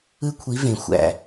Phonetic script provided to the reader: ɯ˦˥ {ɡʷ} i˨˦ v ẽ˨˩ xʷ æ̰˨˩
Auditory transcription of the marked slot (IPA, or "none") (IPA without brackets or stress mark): kʷʰ